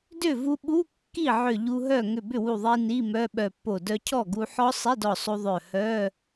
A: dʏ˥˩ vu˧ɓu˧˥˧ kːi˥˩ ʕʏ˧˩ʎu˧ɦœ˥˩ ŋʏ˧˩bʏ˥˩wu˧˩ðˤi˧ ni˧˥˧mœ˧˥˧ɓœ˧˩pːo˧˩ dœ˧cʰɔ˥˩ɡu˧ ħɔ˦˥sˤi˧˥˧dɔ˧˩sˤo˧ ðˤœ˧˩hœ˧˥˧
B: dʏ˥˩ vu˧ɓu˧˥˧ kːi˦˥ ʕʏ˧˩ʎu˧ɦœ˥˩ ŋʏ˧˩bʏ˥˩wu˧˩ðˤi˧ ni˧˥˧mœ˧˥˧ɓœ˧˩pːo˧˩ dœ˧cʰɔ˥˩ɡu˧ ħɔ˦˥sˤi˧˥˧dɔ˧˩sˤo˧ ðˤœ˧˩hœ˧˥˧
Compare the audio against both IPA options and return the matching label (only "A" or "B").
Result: A